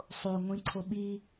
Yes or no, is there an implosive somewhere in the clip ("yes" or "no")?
yes